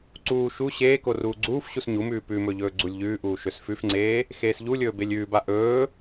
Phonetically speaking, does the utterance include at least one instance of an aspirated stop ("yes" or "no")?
no